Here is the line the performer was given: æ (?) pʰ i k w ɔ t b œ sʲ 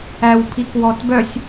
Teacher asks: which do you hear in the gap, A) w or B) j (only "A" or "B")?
A